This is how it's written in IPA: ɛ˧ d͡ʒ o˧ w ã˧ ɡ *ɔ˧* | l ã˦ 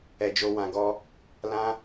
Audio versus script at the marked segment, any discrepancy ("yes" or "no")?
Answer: no